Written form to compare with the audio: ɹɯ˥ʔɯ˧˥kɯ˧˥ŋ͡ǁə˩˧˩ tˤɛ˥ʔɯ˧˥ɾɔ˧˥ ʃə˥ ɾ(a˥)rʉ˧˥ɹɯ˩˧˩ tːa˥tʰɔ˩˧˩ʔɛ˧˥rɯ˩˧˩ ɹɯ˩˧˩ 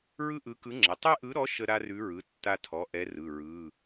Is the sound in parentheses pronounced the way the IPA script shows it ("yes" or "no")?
yes